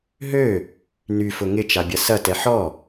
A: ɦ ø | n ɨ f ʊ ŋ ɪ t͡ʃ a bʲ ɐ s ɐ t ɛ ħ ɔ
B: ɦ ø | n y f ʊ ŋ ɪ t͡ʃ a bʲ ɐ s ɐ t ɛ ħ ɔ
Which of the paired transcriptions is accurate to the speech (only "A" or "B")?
B